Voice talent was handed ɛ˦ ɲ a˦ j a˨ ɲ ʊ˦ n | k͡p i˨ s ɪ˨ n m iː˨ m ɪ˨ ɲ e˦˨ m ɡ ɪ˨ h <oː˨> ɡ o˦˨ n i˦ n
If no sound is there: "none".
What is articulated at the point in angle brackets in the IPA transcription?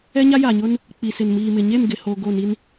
o˨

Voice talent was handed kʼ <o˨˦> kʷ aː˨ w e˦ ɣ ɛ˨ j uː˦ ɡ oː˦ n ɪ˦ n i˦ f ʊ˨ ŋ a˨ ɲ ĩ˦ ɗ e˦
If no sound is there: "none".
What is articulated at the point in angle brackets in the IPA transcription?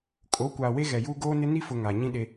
o˨˦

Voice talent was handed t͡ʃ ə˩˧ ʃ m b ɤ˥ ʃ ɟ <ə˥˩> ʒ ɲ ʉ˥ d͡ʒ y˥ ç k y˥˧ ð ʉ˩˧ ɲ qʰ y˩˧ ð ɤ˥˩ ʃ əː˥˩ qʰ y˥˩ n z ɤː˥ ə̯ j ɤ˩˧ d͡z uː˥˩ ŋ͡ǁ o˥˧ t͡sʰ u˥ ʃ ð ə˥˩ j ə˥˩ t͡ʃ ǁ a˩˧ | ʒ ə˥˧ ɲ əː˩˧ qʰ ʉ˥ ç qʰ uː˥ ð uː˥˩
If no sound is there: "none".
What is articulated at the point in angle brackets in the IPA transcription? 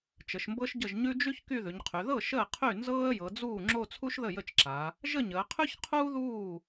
ə˥˩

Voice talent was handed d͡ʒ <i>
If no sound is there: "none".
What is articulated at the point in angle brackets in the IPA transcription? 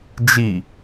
i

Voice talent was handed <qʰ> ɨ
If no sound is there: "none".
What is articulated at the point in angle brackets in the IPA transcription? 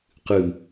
q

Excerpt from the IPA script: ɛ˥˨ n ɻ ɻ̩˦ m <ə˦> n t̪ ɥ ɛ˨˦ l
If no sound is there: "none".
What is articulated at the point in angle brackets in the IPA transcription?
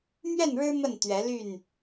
ə˥˨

